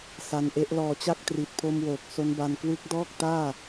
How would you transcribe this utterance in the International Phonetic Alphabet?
s a˧ n ʔ e˦˥ ʔ l ɔː˧ t͡ɕ a˥˩ k̚ t r i˨˩ t̚ pʰ o˧ m w oː˨˩ k̚ s o˦˥ n b a˧ n k w ɯ˦˥ k̚ d ɔː˥˩ k̚ t aː˥˩

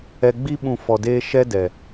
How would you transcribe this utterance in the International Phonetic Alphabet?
ɛ˧ ɡ͡b i˦ ɓ ũ˧ f ɔ˧ d eː˦ ʃ ɛ˦ d ɛ˨

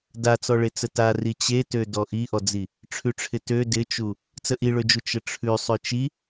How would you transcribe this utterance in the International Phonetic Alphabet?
d a t͡s ɔ ɭ e t͡s ə t a r i t͡ɕ e t ø d ɔ ʔ i ʔ ɔ d͡z i | ʈ͡ʂʰ ʉ ʈ͡ʂʰ ɪ t ø d ɪ t͡ʃ u | t͡s ə ʔ i ɭ ø d͡ʒ u t͡ʃ ə ʈ͡ʂʰ ʉ sˤ ø t͡ʃ i

